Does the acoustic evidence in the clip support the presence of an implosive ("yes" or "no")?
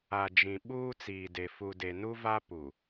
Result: yes